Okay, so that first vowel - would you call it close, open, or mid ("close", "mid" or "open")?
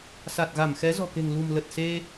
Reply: open